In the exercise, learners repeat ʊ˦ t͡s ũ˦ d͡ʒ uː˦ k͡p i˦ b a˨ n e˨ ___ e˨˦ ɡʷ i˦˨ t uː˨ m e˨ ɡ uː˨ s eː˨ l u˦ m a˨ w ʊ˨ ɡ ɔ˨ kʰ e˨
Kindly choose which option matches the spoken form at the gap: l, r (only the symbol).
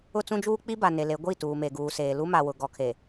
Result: l